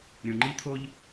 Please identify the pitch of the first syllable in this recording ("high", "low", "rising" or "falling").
low